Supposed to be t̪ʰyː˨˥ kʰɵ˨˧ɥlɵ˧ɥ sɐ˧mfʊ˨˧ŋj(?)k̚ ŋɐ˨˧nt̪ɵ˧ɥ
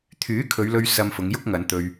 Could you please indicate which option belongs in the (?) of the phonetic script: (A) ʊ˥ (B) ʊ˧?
A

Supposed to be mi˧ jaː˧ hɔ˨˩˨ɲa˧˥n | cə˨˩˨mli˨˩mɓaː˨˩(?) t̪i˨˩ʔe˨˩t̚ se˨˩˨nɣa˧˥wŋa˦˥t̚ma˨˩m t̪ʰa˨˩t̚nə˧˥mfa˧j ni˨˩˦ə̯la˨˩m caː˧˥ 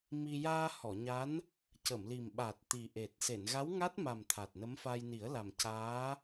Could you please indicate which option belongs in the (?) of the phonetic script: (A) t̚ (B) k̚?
A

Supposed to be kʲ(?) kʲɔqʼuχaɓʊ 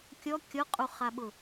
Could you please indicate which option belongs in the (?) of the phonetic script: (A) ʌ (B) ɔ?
B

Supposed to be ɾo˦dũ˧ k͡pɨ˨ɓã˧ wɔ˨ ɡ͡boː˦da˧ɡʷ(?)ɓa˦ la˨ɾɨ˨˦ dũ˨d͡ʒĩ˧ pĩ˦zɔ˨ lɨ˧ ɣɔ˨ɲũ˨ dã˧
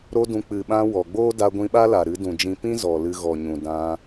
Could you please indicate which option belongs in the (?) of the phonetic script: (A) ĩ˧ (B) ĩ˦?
A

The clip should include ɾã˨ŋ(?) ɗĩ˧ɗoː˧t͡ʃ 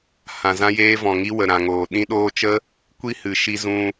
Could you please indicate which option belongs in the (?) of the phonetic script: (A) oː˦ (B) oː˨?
B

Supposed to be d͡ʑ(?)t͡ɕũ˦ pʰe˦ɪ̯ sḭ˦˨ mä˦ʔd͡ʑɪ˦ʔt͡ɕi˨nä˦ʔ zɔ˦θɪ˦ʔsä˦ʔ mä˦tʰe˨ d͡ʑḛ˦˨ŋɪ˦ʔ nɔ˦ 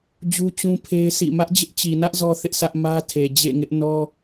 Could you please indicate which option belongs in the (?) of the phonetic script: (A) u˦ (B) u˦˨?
A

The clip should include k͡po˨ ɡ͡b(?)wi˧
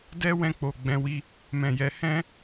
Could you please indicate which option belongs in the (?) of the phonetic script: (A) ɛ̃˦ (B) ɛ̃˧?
B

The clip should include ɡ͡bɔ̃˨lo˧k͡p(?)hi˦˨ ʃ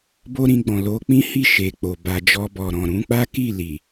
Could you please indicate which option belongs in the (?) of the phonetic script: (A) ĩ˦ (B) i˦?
A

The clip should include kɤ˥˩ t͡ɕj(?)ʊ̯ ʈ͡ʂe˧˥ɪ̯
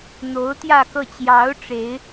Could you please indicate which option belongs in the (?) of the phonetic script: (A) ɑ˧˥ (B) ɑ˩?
A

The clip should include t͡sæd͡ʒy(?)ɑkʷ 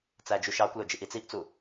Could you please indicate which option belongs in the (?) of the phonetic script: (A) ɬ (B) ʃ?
B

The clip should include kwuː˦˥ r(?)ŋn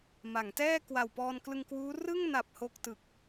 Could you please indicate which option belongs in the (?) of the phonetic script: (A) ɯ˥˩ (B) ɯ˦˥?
A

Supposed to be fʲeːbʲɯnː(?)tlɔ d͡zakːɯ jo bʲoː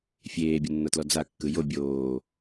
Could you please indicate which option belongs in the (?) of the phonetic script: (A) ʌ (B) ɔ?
A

